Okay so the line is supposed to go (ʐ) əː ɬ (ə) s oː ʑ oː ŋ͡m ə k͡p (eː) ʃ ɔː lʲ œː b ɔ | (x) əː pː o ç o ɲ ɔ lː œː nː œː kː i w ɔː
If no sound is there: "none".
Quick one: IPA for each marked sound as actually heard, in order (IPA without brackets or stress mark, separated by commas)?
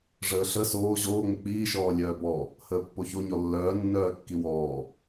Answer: ʐ, ə, iː, h